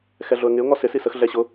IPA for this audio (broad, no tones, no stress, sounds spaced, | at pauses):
x ɛ ɮ ʊ ə̯ ŋ ɪ ʊ̯ ŋ ɔ s ɪ s i s ə x ɮ ɛ ɕ ʊ